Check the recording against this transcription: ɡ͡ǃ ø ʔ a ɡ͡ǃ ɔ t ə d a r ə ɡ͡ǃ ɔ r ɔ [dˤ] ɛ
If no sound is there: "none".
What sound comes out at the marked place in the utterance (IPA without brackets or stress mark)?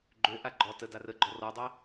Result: dˤ